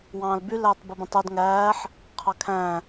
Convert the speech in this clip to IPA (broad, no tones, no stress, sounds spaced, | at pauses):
w ɑ̃ː l b y l æː tˤ b i b ũ tˤ o d ŋ æː ħ | qʰ ɑ kʰ æ̃